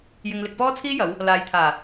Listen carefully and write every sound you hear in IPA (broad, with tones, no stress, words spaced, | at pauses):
jɪ˧ŋlɪ˧k̚pɔː˥ t͡sʰiː˥jɐ˨˧w | laː˨jt̪ʰaː˨˩